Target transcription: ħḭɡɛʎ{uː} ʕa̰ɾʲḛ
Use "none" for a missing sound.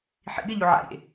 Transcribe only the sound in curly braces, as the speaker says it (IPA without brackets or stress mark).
u